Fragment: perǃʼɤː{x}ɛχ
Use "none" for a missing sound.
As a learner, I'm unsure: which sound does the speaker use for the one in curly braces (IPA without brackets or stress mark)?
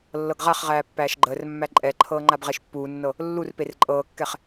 kː